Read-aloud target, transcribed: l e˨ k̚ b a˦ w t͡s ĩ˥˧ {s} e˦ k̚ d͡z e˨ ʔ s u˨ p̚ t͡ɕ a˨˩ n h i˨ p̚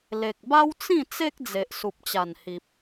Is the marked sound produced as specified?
no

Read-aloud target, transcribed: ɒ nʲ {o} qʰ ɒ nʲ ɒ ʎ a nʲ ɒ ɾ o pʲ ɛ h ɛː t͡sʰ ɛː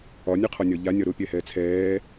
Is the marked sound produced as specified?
yes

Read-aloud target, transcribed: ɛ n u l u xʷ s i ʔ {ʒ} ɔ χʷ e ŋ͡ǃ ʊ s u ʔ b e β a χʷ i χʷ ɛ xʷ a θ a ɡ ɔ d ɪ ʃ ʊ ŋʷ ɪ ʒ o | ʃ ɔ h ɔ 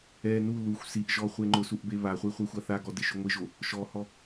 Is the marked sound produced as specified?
yes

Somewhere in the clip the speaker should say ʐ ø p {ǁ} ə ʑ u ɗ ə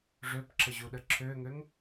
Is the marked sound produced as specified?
yes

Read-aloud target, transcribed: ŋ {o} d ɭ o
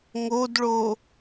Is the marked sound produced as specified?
yes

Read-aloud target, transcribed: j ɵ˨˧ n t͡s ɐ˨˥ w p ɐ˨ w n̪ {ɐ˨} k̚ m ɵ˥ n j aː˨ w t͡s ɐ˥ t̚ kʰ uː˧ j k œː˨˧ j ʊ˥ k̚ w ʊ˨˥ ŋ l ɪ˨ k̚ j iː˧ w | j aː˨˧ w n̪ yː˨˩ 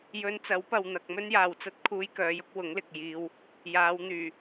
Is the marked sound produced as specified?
yes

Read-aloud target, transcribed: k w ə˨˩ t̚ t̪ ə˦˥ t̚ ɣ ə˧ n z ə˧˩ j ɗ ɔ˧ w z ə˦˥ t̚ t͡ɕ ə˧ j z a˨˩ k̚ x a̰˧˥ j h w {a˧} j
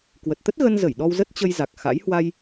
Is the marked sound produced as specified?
yes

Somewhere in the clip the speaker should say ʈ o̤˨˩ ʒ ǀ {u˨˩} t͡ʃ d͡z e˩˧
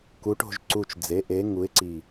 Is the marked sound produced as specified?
yes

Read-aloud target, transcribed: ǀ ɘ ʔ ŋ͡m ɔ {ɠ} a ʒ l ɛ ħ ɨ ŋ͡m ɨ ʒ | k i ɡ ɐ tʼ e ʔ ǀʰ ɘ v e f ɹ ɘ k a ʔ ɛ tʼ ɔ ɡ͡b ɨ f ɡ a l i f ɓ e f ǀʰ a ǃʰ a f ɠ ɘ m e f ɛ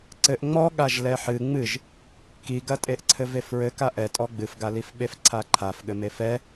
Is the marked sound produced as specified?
yes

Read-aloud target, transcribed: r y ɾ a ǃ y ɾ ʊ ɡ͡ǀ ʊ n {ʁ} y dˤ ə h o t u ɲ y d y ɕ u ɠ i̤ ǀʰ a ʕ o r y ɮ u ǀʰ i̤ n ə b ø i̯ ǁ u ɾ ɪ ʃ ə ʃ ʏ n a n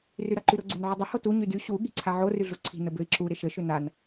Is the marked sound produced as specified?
no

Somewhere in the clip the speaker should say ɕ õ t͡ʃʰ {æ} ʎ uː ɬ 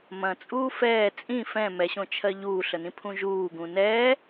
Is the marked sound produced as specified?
no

